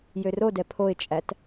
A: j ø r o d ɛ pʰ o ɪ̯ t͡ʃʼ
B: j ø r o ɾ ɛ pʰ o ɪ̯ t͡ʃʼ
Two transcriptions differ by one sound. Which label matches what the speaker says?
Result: A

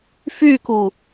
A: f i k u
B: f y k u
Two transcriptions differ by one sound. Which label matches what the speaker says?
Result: B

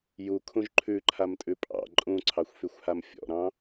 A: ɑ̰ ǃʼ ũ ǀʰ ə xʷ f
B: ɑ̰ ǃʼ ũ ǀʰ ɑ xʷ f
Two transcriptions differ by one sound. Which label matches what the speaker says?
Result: B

